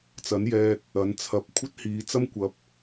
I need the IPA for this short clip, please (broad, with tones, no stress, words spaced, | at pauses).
t͡sɐ˨˥njɛː˧t̚ | ɐ˨˧nt͡sʰɐ˧p̚ kʷʰɐ˥t̚hiː˨˧t͡sɐ˥mkʷɐ˨˥p̚